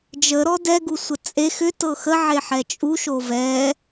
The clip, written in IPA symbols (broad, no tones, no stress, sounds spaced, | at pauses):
d͡ʒ ə ɾ ɔ d ɛ ɡ u sʷ ə t͡sʼ e x ʏ t ɤ x ə ʕ e ħ ɛ t͡ʃʼ u ʃ o v ɛ